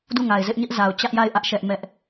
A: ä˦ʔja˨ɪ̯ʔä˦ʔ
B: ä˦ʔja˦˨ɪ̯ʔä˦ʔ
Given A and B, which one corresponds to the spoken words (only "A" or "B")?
B